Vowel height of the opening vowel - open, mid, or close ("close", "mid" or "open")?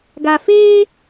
open